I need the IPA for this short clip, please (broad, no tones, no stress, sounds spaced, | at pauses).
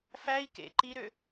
f æ i̯ k ḛ ǃ i ɾ ø